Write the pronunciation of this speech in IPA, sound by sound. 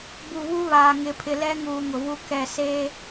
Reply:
b u˨ β u˦ β aː˨ ŋ ɪ˨ pʰ ɪ˨ l ɛ˦ ŋ uː˨ ŋ ʊ˨ v u˦ k ɛ˦˨ s eː˦

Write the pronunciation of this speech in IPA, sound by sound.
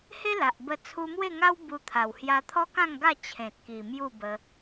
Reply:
h e˦ l a˨ ʔ b ə˧ t͡sʰ u˧ m w e˥˧ ŋ a˦ w b u˧ t̪ʰ a˨˩ w h j a˧ t̪ʰ ɔ˦ k ã˥˧ ŋ ɡ a˥˧ t͡ɕʰ ẽ˨ t̚ k i˨˩ m j u˥˧ b ə˧

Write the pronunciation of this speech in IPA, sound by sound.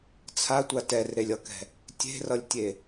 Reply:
t͡sʰ a tʷ a t ɛ r ɾ e lʲ ʌ k ɛ̤ | tʲ e̤ r ʌ lʲ tʲ e

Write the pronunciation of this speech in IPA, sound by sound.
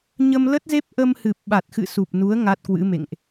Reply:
ɲ ə˧ m l ə˦˥ t̚ z e˦˥ p̚ ʔ ə˧ m h ɨ˨˩ p̚ ɓ a˨˩ t̚ x ɨ̰˧˨ s u˨˩ p̚ n u˨˦ ə̯ ŋ a˦˥ t̚ k w ɨ̰˧˥ m ḛ˧˨ ŋ ʔ

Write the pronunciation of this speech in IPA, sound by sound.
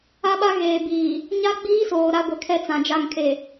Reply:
a˦ ɓ a˦ ɣ eː˨ b iː˨ | ɲ a˦ ɡ͡b iː˦ s oː˨ ɾ a˦ ɡʷ ɛ˨ kʰ ɛ˦ t͡s ã˨ d͡ʒ a˦˨ ŋ kʰ e˨

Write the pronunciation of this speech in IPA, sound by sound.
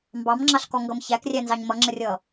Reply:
m b ɑ m ŋ͡ǁ ɑ ɬ k ɔ ŋ ɡ ʌ m ç æ k rʲ æ n z ɑ ɲ m ʌ ŋ͡ǁ ə rʲ ʌː

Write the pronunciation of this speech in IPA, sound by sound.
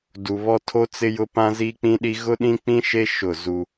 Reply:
d u˨ β ɔ˦ tʰ o˦ t͡s ɪ˦ j ʊ˦ p ã˦ z i˦ k͡p ĩ˦ ɗ i˦ ɣ ʊ˦ ɗ ĩ˦ k͡p ĩ˦ ʃ e˦ ʃ ʊ˦˨ z u˦

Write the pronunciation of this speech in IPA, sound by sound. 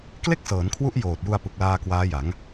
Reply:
k l e˥˩ k̚ s ɤː˩˦ n kʰ w u˦˥ ʔ j oː˨˩ t̚ j u˧ a̯ p ɯ˨˩ k̚ l aː˧ k w aː˦˥ j a˩˦ ŋ

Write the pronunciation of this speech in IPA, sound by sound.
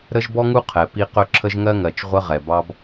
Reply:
ɾ ə˦ ʒ b ɔ˦ ŋ u˦ qʰ ɛ˨ p i˦ q ɵ˦ ǁʰ ə˦ ʒ ŋ ɜ˦ ŋ ɜ˨ t͡ʃ ʁʷ ə˦ ʁ ɛ˨ b ɑ˦ b

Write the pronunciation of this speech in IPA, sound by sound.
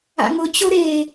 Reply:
a̰ ŋ ʊ t͡ɕ o ɾ e

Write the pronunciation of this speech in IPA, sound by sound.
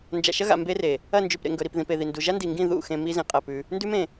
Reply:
n d͡ʒ a̰˨ ʃ ɐ˦ ɣ a̰˨ m b e˦ r e˨ | ɐ˦˨ n d͡ʒ ʉ˨ p ɾ ḛ˨ ŋ ɡ ɵ˨ ɾ i˨ p ð ĩ˨ p e˨ ð i˨ n d u˨ ʒ a˦ n d i˨ ŋ ɡ ĩ˦˨ ð ṵ˦˨ x ẽ˨ m i˦ z ĩ˨ qʼ ɐ˦˨ p ʉ˦ | n d ʉ˦ m ẽ˨

